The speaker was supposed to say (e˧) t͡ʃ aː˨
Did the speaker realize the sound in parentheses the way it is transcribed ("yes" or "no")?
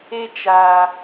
yes